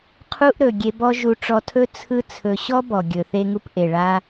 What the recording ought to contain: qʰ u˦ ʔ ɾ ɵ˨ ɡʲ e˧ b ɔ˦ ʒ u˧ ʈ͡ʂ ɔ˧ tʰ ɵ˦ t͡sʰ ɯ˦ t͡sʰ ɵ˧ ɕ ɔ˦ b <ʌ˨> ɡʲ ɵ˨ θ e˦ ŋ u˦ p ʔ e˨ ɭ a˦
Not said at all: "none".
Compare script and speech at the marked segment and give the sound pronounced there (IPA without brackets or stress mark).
ɔ˨